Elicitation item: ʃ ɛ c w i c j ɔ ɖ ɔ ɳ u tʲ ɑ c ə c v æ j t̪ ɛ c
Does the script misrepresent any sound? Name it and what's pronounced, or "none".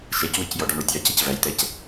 none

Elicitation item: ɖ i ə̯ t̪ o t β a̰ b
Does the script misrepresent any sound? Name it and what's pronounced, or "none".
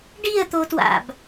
β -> w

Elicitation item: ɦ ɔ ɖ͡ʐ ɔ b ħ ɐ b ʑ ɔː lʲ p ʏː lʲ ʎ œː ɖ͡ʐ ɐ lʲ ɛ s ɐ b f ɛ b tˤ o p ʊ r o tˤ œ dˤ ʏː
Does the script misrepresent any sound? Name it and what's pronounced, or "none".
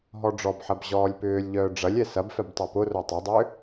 none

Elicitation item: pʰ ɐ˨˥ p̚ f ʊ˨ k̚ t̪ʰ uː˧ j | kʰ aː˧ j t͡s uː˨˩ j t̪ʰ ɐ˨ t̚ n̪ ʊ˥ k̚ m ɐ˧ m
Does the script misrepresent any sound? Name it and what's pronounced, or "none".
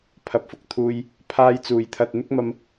kʰ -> pʰ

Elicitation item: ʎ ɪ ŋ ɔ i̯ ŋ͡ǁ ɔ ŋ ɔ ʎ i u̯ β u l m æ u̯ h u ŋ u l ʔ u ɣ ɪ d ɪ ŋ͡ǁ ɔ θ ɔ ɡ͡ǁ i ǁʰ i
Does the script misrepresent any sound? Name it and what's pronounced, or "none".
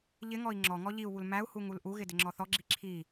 none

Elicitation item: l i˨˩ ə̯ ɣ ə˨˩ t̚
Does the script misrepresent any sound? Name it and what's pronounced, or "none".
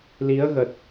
i˨˩ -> i˨˦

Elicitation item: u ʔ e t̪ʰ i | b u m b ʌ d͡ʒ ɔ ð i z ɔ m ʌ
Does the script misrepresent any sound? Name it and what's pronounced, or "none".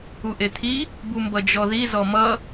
none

